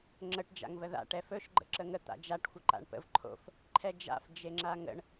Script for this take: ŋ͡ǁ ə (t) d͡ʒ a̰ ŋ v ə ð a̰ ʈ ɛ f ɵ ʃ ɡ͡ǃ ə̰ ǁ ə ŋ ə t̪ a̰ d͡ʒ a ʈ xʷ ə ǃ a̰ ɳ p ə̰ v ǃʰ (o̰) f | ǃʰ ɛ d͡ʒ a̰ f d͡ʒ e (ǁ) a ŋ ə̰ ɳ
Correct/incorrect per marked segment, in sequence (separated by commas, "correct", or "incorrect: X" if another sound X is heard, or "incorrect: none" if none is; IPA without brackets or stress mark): incorrect: ʈ, correct, incorrect: ŋ͡ǁ